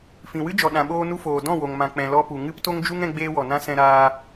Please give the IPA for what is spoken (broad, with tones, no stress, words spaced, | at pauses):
fĩ˨wɨ˦d͡ʒɔ˨ ɗã˨ɓoː˧nu˧foː˨ dɔ̃˦˨wo˨ŋ mã˨k͡pɛ̃˨lɔ˧pu˨ ŋɨ˦pto˦ŋd͡ʒu˦ŋ ɛ̃˧ɡ͡beː˧wɔ˨nã˧ sɛ̃˧ɾaː˧